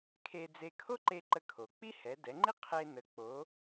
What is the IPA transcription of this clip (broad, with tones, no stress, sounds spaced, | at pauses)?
kʰ e˧ d͡z e˧ kʰ o˥ ǃ e˧ ǃ ə˧ kʰ o˩ k͡p i˥ h ɛ˩˧ d ɛ˩˧ ŋ͡ǃ i˥ qʰ e˧ n ə˩˧ k͡p o˩˧